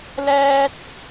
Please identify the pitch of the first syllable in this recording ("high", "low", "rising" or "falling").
high